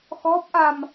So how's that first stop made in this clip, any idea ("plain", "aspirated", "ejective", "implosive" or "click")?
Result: plain